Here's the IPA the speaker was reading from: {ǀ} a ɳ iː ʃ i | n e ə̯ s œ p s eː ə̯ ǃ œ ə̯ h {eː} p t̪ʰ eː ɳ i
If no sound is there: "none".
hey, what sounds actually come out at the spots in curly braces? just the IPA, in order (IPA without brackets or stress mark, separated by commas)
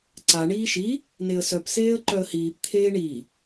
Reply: ǀ, iː